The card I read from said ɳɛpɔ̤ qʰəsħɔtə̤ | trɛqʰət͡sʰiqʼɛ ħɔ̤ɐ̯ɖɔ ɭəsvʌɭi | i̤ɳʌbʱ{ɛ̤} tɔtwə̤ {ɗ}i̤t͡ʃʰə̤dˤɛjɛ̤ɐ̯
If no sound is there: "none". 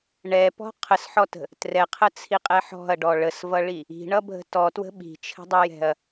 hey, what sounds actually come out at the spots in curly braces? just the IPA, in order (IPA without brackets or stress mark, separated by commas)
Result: ə̤, ɓ